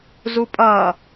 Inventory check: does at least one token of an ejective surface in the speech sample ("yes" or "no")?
yes